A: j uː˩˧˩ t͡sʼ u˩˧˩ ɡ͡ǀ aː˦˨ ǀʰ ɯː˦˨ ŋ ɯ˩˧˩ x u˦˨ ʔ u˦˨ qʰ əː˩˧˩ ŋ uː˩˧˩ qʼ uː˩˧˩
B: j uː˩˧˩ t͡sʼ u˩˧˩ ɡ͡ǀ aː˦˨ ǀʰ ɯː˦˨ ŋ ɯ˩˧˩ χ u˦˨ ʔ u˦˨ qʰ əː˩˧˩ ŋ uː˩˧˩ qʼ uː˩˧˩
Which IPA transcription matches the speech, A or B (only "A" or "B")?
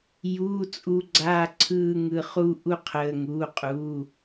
B